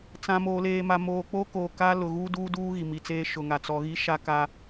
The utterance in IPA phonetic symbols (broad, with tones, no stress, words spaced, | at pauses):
t͡sã˨ moː˨leː˨ma˨ moː˨k͡poː˦koː˨kaː˦ lʊ˨ɣuː˦ duː˦duː˦ ɣi˨mi˨t͡seː˦ ʃʊ˨ŋa˨ t͡sɔ˨ɣi˦ ʃa˦ka˦